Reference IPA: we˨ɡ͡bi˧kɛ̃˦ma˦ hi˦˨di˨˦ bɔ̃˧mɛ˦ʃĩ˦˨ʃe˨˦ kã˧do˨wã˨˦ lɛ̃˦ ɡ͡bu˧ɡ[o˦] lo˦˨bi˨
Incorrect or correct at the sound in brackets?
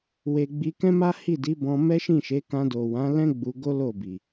correct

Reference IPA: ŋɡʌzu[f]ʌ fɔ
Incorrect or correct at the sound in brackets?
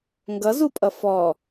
incorrect: pʼ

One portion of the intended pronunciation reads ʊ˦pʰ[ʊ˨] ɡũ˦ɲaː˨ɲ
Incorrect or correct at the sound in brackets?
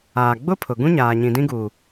correct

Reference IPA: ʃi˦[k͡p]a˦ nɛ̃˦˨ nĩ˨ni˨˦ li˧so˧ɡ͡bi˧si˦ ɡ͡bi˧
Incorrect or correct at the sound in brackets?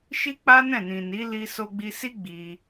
correct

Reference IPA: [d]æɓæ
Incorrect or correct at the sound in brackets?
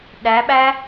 incorrect: ɗ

